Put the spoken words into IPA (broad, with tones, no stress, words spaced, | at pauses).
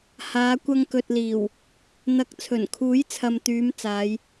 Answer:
haː˨˧kʷɐ˧ŋ kɵ˨t̚liː˨˩w | n̪ɐ˨˥k̚ t͡sʰɵ˨˩nkʰuː˨˥j t͡sʰɐ˨mt̪yː˨˧m t͡saː˨˧j